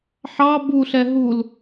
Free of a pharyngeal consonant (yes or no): no